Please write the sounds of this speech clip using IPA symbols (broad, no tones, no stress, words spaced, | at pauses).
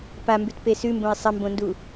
pambʉtpe sʉmbõɪ̯ sˤɐmbõndu